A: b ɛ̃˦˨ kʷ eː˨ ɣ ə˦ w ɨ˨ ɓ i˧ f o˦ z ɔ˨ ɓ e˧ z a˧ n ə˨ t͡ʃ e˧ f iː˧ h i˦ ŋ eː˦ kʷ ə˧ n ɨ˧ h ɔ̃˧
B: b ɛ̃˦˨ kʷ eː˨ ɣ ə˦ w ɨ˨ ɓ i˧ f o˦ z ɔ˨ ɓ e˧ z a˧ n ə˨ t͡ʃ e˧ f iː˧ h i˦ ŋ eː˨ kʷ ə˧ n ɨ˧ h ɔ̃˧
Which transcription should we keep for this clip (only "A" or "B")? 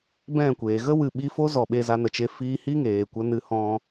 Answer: B